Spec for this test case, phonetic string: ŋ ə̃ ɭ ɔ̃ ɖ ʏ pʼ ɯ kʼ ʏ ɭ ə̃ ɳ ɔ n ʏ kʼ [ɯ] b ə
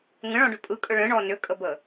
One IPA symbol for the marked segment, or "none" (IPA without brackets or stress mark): ə